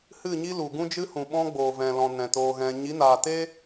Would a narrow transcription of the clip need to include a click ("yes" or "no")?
no